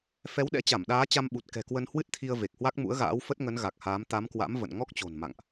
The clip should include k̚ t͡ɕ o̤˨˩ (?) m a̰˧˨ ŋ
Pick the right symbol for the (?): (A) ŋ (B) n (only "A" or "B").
B